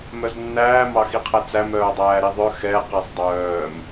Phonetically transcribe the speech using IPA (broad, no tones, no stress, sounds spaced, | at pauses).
m œ z nː æː m ɑ x i qʰ ɛ t͡s æ m œː dˤ æː ɾ i ðˤ œ x ɛ q e sˤ dˤ œː m